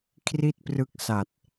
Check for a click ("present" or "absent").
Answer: absent